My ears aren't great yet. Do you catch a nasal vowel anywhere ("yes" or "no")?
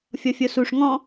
yes